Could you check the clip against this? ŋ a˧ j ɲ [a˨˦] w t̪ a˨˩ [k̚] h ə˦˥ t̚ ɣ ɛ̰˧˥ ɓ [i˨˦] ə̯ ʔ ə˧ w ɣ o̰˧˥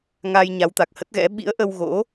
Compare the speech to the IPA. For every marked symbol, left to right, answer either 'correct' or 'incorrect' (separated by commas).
correct, correct, incorrect